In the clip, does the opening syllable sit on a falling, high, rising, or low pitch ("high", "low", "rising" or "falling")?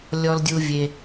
low